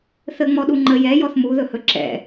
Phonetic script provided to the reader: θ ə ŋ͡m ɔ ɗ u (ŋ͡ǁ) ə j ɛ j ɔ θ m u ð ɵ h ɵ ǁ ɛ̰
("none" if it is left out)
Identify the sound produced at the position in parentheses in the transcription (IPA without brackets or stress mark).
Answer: ŋ͡ǃ